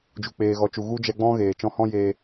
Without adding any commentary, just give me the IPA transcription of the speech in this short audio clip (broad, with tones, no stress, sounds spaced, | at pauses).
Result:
d͡ʒ u˨ k͡p eː˨ ɣ ɔ˨ t͡ʃ u˨ ɣ u˦ d͡ʒ ɛ˧ ɡ͡b ɔ̃˦ ɣ eː˨ t͡ʃ ɔ̃˧ h ɔ̃˦ j eː˧